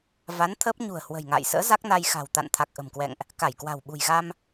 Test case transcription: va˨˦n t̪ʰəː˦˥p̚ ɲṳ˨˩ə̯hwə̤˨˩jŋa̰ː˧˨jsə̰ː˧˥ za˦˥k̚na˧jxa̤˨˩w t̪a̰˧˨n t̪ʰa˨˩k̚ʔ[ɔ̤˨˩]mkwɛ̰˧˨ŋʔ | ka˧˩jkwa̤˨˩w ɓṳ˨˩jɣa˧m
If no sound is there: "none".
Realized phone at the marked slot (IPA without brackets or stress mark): ə̤˨˩